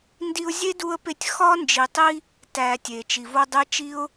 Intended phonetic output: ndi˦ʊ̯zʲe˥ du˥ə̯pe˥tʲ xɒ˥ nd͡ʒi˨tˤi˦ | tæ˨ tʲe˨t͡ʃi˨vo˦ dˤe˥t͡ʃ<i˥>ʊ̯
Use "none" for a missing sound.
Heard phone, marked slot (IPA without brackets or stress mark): i˥